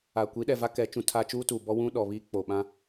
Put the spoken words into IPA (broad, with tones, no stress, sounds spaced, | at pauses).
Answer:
a˨ kʷ i˨˦ ɗ ɛ˨ v a˦ k ɛ˨˦ t͡ʃ ũ˨ tʰ aː˦ t͡ʃ uː˦ t uː˨ b ɔ˦ w ũ˦ ɗ ɔ˨ β iː˦ k͡p o˨ ɓ ã˦